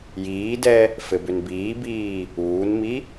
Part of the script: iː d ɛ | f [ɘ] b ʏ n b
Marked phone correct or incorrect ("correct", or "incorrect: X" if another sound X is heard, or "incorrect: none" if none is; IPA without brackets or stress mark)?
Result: correct